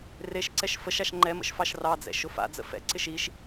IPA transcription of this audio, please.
r e ʃ ǀ ɛ ʃ f ə ʃ a ʃ ŋ͡ǃ ɛ m ə̰ ʃ f ɑ ʃ r ɑ d͡z ɛ̰ ʃ ʊ f a̰ d͡z ə̰ f ɛ̰ ǀ ɪ ʃ i ʃ

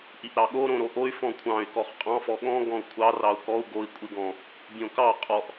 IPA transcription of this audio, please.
ʔ i ʔ ɾ ɑ ɠ o ɾ õ ɾ o ʔ o y̯ f ɔ̃ kʷʰ ɑ̃ y̯ k ɔ χ qʼ ɑ̃ f ɔ ɠ ɔ̃ ɡ ɔ̃ u̯ kʷʰ ɑ r ɑ u̯ k ɔ u̯ ɡ o i̯ kʷʼ i ɡ ɔ̃ | bʲ õ k ɑ qʼ ɔ ʔ

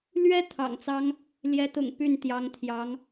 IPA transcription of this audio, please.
l ɥ ɛ˥ t̪ʰ ɑ̰˨˩ ŋ t͡s ɑ˥ ŋ | l j ɛ˧˥ t̪ ʊ̰˨˩ ŋ p y˥˩ n t̪ j ɑ˧˥ ŋ t̪ʰ j ɑ˧˥ ŋ

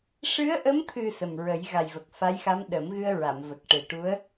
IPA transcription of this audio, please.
ʂ ɨ˧˥ ə̯ ʔ ə˧˥ m t̪ʰ ɨ˨˩ s ə˨˩ m ɹ ə˨˩˦ j ɣ a˨˩ j v ə˨˩ k̚ f a˧˥ j x a˧˥ m ɗ ə˨˩˦ m ɣ ɨ˧ ə̯ ɹ a˨˩˨ m v ə˨˩ k̚ ʈ e˨˩ ʈ u˧˥ ə̯

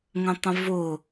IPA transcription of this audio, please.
ŋ ə̃ tˤ ə̃ v ʊ

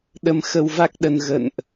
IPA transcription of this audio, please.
ɗ ə˧ m x ə˧ w v a˦˥ k̚ ɗ ə˧ n ɣ ə̰˧˨ n ʔ

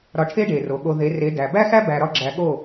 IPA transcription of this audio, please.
ɾ ɒ˧ ʈʰ e˦ ɖ e˨ r o˨ ɠ o˧ ð e˨˦ r e˨˦ d æ˨ b æ˦ x æ˦ b æ˧ ɾ ɒ˦ ɡ͡ǁ æ˧ ɠ o˦˨

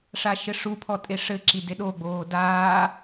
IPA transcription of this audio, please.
ʂ a ʃ ɘ ʂ u pʰ ɔ tʼ e ʂ ɘ ǁ i d e ɗ o ɡ͡b oː d aː

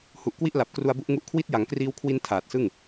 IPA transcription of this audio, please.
h u˨˩ ʔ k w i˥˩ ʔ l a˨˩ p̚ k r u˧ a̯ b u˦˥ ʔ ŋ u˦˥ ʔ kʰ w i˦˥ t̚ j a˩˦ ŋ k r iː˧ w kʰ w i˧ n tʰ aː˨˩ t̚ s ɯ˥˩ ŋ

